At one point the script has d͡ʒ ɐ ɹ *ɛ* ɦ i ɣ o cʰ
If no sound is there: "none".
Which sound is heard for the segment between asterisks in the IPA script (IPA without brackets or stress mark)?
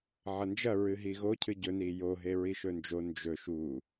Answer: ɨ